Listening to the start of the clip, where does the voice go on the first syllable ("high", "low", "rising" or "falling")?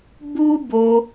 high